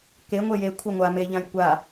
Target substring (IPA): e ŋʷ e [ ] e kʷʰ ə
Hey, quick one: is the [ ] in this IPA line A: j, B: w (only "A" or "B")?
A